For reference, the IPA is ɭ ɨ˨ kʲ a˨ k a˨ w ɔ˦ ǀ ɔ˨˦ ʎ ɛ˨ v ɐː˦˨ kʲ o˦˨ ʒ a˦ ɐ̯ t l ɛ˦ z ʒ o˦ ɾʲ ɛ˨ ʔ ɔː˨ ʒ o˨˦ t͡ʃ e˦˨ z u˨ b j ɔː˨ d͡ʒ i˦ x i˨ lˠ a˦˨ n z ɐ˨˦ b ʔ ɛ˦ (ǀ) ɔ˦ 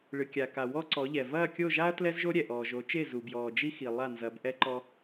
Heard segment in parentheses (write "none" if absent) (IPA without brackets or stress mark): ǃ